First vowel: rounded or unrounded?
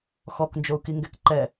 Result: rounded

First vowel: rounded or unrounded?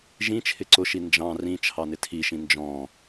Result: unrounded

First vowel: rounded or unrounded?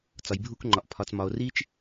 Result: rounded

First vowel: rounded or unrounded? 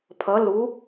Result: unrounded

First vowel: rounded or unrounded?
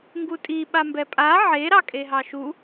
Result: rounded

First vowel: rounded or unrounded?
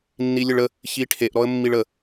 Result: unrounded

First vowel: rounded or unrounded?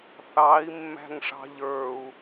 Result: unrounded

